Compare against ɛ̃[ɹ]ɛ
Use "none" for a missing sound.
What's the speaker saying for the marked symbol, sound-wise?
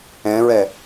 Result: ɹ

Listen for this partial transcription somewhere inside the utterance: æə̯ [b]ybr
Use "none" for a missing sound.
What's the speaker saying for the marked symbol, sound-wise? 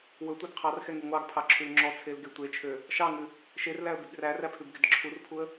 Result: b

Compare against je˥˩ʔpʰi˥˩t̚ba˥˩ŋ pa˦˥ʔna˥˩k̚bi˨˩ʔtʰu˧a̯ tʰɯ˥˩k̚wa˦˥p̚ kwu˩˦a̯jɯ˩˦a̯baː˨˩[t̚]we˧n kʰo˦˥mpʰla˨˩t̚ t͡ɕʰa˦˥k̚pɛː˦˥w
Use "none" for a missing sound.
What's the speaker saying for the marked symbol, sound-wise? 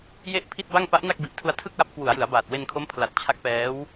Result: t̚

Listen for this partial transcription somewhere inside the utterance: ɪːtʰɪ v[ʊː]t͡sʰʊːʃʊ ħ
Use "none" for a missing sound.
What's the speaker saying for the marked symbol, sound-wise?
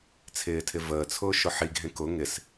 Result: əː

